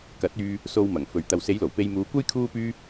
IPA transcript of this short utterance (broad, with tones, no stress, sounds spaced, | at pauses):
k ɐ˨˥ t̚ yː˧ | s o˧ w m ɐ˨˩ ŋ f ɵ˨ ɥ t̪ ɐ˨ w s e˨˧ j l o˨˩ w p e˧ j m uː˨˧ kʷ ɐ˥ j kʰ uː˥ p yː˥